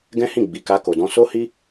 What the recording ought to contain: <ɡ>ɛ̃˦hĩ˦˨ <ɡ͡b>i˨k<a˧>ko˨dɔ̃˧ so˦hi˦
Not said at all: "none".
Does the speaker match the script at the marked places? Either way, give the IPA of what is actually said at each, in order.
ɡ, ɡ͡b, a˧

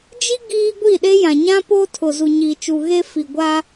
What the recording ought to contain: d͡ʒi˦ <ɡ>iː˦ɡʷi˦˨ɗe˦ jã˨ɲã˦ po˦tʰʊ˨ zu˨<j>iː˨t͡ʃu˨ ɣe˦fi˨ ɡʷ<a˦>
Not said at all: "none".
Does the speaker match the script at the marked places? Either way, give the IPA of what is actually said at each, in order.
ɡ, ɲ, a˦

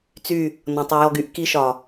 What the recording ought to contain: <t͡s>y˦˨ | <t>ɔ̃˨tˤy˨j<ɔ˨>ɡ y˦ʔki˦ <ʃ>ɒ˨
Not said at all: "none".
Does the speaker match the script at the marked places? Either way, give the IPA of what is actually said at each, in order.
t͡s, n, ɔ˦, ʃ

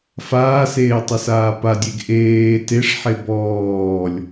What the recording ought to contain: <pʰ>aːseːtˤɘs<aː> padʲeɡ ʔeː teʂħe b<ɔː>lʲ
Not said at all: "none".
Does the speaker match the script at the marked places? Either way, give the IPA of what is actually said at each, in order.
f, aː, ɔː

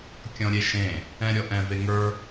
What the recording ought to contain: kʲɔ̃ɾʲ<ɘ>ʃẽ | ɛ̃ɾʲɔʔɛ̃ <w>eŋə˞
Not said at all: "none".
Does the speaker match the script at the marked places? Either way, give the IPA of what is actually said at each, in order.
e, v

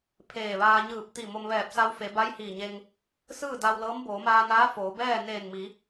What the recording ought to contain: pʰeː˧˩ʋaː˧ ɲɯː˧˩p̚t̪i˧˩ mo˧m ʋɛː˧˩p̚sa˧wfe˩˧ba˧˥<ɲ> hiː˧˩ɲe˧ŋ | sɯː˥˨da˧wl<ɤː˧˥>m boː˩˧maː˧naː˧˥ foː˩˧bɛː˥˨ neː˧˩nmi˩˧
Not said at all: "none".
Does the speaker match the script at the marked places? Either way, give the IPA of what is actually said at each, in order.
j, ɤː˧˥

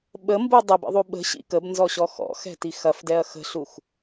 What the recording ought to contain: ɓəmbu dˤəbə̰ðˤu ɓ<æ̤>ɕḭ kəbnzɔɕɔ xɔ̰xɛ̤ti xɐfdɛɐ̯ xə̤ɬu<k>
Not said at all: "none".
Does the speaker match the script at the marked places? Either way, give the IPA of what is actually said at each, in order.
ə̤, x

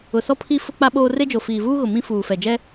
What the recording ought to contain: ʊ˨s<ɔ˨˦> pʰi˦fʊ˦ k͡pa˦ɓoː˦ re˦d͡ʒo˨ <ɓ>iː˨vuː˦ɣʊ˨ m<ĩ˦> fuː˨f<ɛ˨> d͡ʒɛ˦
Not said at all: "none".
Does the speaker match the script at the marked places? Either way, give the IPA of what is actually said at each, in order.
ɔ˦, f, ĩ˦, ɛ˨

